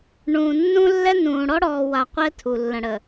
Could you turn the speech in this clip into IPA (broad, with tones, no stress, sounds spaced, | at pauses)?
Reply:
ɳ ũ˨ nː ũ˦ lː ɛ˦ n ũː˨ ɽ ɔ˦ ɽ ɔː˨ w a˨ qʷ ɛ˦ tʰ u˨ lː ə̃˨ ɽ ə˨